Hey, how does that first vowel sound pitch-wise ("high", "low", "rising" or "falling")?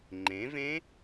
rising